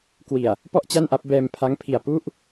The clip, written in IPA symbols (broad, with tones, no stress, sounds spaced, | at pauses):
k w i˨˩ a̯ | p ɔ˥˩ ʔ t͡ɕ a˥˩ n ʔ a˦˥ p̚ b ɛː˧ m pʰ a˦˥ ŋ pʰ i˨˩ a̯ p u˦˥ ʔ